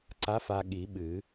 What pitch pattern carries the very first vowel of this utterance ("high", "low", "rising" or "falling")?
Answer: rising